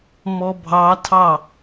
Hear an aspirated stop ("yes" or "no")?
yes